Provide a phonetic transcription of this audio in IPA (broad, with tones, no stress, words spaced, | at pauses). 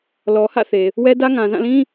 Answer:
lɔ˨hä̰˦˨θe˨ | wɛ˦dä˦ ŋã˨zã˦˨lĩ˦